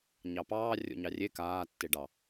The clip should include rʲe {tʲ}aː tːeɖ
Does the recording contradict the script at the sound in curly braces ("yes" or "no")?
yes